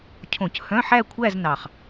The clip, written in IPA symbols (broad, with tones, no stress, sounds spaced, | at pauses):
cʰ õ˧˩˧ c h œ̃˧˥˧ ħ æ˥˧ kʷʰ æ˥˧ z n ɑ˨˩ χ